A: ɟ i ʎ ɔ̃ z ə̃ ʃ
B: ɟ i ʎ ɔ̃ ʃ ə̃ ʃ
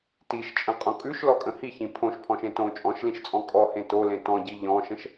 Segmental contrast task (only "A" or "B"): B